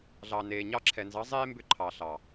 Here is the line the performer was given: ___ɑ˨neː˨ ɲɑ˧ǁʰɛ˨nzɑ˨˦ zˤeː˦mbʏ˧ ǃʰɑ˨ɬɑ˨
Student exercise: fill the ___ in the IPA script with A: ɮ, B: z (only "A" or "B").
A